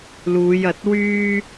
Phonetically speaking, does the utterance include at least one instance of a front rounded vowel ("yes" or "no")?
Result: yes